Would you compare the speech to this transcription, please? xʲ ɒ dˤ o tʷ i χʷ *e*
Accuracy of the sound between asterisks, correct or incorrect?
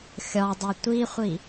incorrect: i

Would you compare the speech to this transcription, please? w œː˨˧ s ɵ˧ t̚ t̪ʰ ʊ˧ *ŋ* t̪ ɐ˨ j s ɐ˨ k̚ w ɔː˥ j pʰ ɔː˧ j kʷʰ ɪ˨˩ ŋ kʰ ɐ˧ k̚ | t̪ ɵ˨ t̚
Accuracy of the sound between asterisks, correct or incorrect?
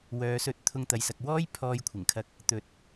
correct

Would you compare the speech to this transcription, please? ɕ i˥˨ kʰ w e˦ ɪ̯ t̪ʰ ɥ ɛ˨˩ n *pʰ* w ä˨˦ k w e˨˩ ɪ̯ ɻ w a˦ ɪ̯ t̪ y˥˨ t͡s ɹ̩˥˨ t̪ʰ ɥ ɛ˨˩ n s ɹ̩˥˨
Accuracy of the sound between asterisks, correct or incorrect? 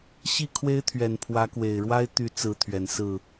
correct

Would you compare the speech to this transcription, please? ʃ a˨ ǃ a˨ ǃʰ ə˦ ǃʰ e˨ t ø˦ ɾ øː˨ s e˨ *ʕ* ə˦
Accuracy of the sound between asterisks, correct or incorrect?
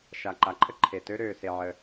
correct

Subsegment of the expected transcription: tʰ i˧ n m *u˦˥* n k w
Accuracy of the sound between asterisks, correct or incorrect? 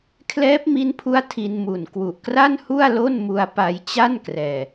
incorrect: u˨˩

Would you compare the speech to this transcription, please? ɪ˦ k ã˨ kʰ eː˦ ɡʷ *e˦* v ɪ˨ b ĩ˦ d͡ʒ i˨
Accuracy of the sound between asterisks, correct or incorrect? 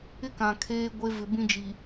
correct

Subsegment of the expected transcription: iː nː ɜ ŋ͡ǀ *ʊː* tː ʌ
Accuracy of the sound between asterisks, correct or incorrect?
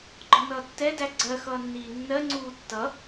incorrect: uː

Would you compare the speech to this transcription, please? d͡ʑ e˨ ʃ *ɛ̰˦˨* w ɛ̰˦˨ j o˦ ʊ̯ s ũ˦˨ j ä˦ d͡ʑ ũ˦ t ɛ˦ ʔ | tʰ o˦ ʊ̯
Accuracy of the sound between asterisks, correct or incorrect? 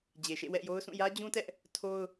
incorrect: ḛ˦˨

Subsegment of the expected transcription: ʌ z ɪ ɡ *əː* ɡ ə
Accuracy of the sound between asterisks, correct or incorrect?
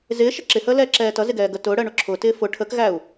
incorrect: ɛː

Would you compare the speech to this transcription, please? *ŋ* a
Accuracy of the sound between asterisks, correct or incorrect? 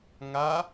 correct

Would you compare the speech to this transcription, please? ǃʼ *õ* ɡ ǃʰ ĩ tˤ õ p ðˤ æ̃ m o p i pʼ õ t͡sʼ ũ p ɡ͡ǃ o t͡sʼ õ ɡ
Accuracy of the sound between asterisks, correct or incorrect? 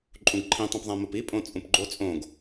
incorrect: ũ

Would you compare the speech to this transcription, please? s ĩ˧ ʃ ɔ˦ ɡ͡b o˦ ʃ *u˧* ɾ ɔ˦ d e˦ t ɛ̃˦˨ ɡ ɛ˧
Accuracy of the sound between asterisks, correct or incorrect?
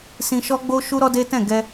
incorrect: u˦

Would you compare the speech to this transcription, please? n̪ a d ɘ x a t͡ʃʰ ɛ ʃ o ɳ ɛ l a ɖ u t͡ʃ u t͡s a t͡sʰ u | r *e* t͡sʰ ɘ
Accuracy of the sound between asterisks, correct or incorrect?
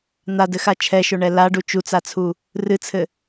incorrect: ɨ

